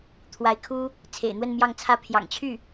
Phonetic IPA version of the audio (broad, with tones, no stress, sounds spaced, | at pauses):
t̪ʰ w a˧˥ ɪ̯ kʰ u˥ | t͡sʰ ḛ˨˩ ɪ̯ n̪ w ə˥˧ n m j ɑ˥˧ ŋ t͡sʰ ä˥˩ pʰ j ɑ̰˨˩ ŋ t͡ɕʰ y˥˩